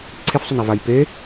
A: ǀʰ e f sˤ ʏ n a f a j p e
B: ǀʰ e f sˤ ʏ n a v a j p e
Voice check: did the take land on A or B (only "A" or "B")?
B